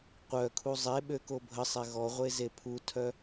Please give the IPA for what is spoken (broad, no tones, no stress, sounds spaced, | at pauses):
qʷ œ kʰ u zˤ e ɓ ø k o bʱ ə sˤ ɛ ɣ ɔ ʁʷ e z e pʰ u tʰ œ